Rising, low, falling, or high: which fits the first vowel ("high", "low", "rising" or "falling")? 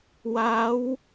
rising